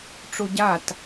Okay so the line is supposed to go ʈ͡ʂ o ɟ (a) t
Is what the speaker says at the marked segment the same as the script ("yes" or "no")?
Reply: yes